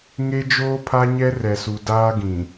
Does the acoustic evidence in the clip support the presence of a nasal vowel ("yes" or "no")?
yes